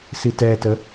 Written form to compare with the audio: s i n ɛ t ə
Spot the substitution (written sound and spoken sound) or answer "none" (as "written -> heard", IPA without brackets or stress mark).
n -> t